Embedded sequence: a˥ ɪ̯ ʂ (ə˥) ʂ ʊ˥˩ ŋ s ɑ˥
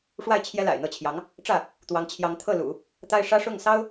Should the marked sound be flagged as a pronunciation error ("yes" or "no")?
yes